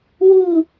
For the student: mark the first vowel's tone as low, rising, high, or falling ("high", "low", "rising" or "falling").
falling